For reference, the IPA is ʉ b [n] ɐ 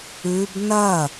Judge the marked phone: correct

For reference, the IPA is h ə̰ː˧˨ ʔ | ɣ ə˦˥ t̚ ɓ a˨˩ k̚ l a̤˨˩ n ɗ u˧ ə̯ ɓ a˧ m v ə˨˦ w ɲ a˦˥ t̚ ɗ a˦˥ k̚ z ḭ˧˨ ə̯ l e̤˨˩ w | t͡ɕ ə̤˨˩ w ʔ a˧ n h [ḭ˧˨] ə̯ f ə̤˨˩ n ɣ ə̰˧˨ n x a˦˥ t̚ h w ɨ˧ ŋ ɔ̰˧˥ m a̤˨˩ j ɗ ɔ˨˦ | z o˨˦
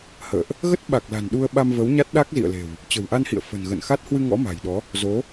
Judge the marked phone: correct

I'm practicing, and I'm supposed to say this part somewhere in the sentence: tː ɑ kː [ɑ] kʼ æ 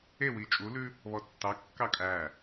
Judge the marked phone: correct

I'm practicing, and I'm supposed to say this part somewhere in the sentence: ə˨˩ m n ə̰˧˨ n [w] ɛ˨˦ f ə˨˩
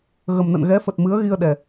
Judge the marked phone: incorrect: ɣ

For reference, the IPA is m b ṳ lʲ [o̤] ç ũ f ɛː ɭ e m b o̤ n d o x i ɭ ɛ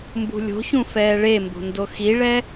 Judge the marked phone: correct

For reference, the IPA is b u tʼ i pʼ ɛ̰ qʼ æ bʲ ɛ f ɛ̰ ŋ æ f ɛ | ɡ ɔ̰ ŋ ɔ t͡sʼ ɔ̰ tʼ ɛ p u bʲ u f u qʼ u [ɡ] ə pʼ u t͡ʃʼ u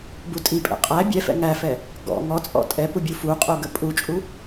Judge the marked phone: correct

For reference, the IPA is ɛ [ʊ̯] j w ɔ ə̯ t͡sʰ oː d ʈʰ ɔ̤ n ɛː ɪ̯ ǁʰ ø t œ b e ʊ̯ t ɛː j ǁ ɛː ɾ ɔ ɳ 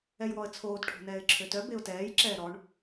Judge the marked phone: incorrect: none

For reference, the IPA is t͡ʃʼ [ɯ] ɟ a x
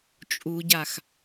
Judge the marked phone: incorrect: u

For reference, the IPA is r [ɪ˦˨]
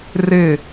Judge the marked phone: correct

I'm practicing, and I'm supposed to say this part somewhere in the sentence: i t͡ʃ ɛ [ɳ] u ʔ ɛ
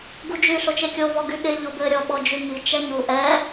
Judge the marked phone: incorrect: ɲ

